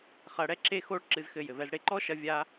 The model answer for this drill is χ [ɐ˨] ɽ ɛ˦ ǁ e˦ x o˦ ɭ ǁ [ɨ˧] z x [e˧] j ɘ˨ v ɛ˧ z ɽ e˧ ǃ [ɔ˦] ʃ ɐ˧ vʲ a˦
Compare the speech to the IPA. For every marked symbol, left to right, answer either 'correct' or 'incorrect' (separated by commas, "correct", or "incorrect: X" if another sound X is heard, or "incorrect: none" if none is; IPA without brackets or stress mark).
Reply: incorrect: ɐ˧, correct, incorrect: ɘ˧, correct